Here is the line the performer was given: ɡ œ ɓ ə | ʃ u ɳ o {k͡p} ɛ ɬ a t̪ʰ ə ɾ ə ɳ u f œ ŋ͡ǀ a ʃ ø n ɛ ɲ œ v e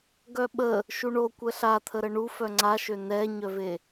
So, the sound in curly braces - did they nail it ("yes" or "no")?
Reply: no